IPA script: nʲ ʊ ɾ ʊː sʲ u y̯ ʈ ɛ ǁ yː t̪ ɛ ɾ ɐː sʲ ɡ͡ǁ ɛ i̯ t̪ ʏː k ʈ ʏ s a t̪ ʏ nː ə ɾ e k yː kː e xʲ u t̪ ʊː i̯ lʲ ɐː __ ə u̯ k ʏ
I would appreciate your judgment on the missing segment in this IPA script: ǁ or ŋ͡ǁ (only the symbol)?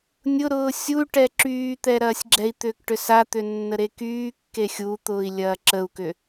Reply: ǁ